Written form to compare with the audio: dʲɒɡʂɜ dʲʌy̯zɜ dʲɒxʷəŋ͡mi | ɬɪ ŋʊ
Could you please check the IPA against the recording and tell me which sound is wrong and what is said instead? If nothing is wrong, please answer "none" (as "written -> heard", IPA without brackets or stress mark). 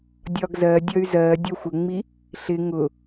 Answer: ʂ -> z